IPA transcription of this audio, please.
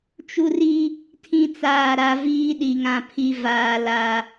t͡ʃ u˦ r i˦ | tʰ ĩ˦ t͡s aː˦˨ ɾ a˦ v iː˦ ɗ i˨ ŋ ã˦˨ pʰ i˦ v aː˦ l a˦

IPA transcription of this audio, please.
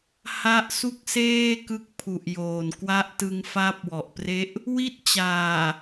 h a˦˥ ʔ s u˥˩ k̚ s eː˥˩ k ɯ˦˥ k̚ pʰ u˨˩ ʔ j oː˨˩ n k w a˦˥ ʔ t ɯ˧ ŋ f a˦˥ p̚ w ɔ˨˩ ʔ p r e˦˥ ʔ | w i˥˩ t̚ t͡ɕ aː˨˩

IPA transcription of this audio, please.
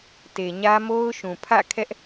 t e˨ ɲ ä˦ m o˦ ʊ̯ ʃ ũ˨ pʰ ä̰˦˨ kʰ ɛ˦ ʔ

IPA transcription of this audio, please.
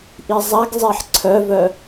ʔ i zˤ a ɡ zˤ e ħ ǀʰ œ v œ

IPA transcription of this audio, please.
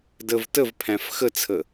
d ə v t ə v pʰ æ̃ f x ə t͡sʰ ə

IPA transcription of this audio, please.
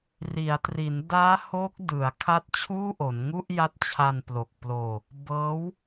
r i˩˦ a̯ t r i˩˦ n d aː˦˥ h o˦˥ k̚ d ɯ˩˦ a̯ kʰ a˦˥ t̚ t͡ɕʰ uː˥˩ ʔ o˩˦ n ŋ u˥˩ ʔ j a˦˥ t̚ t͡ɕʰ a˧ n p l o˨˩ k̚ p l oː˧ | b ɤː˦˥ w

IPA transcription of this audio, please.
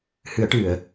h ɨ˨˩˦ ə̯ ʈ ɨ˨˩˨ ə̯

